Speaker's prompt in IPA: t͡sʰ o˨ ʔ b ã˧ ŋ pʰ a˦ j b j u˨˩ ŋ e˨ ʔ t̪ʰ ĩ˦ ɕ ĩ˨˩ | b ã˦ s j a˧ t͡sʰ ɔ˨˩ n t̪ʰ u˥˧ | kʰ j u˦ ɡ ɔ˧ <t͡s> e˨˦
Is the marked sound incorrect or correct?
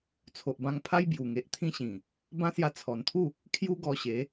incorrect